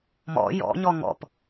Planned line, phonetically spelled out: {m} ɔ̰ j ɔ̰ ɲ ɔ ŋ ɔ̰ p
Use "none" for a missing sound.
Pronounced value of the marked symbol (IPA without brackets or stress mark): m